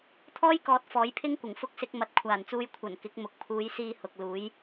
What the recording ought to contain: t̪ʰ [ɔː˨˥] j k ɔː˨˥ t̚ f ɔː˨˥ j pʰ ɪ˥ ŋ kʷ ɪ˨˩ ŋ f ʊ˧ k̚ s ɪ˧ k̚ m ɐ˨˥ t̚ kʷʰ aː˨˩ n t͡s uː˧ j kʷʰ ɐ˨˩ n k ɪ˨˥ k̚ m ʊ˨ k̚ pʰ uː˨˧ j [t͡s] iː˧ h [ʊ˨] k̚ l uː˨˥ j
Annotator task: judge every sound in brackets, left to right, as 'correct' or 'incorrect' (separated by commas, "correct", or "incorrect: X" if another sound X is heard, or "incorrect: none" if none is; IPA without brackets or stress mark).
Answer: incorrect: ɔː˥, incorrect: s, correct